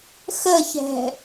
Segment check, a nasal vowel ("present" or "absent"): absent